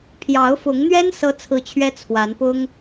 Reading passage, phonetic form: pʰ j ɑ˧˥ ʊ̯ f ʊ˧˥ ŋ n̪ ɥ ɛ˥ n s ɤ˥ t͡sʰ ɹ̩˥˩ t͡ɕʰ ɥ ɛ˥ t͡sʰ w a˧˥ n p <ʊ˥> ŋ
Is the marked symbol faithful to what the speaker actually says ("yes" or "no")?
yes